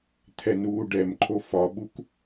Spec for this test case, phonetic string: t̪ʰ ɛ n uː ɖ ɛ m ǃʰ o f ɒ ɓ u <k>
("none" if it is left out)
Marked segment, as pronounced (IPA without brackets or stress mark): k